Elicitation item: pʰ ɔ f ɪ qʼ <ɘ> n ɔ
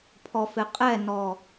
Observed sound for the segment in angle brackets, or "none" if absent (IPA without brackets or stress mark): ɛ